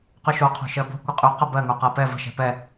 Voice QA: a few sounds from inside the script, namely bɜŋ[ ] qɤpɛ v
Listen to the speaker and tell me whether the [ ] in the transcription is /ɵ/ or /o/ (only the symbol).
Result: o